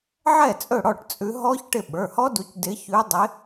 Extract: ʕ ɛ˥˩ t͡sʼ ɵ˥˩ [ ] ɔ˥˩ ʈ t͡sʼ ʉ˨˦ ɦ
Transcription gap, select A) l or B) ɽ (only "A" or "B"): B